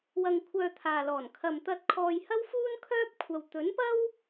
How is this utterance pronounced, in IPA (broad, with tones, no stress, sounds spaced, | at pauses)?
w ɐ˧ ŋ kʷʰ œː˧ t̪ʰ aː˨ l ɔː˨˩ n kʰ ɐ˨ m t̪ ɐ˧ t̚ kʰ ɔː˧ j h ɐ˥ w f uː˥ n kʰ œː˥ p̚ kʷʰ ɐ˧ w t̪ ɵ˨˥ n p ɐ˥ w